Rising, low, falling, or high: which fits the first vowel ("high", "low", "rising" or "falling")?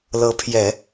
rising